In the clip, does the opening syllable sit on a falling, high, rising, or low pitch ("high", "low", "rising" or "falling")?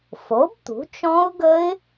rising